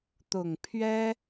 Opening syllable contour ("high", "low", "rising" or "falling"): low